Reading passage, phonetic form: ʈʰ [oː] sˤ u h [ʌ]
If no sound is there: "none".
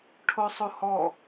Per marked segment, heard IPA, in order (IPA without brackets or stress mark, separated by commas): o, ɔ